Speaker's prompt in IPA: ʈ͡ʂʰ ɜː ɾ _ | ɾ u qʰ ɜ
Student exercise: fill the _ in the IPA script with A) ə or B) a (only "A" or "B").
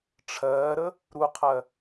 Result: A